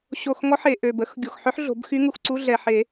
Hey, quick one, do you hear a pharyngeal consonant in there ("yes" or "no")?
yes